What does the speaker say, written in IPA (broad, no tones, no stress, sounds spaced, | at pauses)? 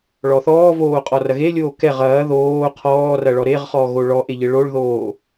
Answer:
ɭ ɔ θ ɔː v oː qʼ ɔ r ɐ ɣ e lʲ oː k ɛ ʁ ɐː ð oː qʰ ɔː r ɐ ɭ ɔ ɾ e ʁ χ ɔː ɣ o ɭ ɔ ʔ e ʎ ɘ ɭ o ɭ ð oː